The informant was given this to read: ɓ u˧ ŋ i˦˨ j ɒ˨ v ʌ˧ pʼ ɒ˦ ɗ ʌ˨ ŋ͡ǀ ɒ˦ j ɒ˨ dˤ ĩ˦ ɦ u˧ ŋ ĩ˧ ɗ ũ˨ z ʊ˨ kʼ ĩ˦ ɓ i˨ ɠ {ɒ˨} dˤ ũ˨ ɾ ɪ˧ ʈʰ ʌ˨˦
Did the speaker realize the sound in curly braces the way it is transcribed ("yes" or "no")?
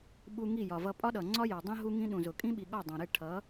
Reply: no